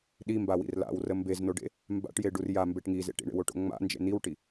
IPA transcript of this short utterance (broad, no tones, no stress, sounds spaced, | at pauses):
ɗ i m b a w ḭ r l a̰ w r ə m b e z n o ɖ ḛ | m b a̰ ʈ j e ɖ u r j a m b e ʈ ŋ i z ḛ ʈ ḭ ɳ ḛ w o ʈ o̰ ŋ͡m a̰ n d͡ʒ ḛ n i w ʈ i